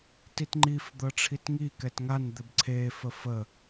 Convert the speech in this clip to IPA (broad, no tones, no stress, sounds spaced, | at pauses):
t i t ŋ͡ǃ i f d̪ ɤ ʈ͡ʂʰ i t ŋ i k ɛ t ŋ a n d̪ ɘ b ǀʰ e f ə f ə